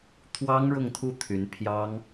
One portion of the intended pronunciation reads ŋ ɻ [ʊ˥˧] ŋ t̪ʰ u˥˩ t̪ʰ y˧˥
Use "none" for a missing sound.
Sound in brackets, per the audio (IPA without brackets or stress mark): ʊ˥˧